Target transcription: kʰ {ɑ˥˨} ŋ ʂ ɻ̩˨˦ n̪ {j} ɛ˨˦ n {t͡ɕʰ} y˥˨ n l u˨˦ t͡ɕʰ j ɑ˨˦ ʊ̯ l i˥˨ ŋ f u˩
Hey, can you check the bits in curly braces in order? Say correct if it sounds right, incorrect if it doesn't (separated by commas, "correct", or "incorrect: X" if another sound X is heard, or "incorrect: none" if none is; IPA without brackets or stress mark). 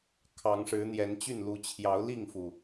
incorrect: ɑ˨˦, correct, incorrect: t͡ɕ